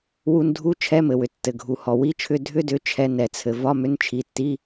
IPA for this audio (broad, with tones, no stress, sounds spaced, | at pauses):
w u˧ n dʱ u˧˥˧ t͡ʃʰ ɛ˧˥˧ m ɘ˩ w ʏ˩ tː ɘ˩ ɡʱ u˩ h ɔ˩ w i˧˥˧ t͡ʃʰ ʏ˧˥˧ dʱ ʏ˧˥˧ d ʏ˩˧˩ t͡ʃʰ ɛ˧ n ɛ˩ t͡sʰ ɘ˩ v ɒ˧˥˧ m ʏ˧˥˧ n t͡ʃʰ i˩˧˩ tː i˧˥˧